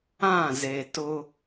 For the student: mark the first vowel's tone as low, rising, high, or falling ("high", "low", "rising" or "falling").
falling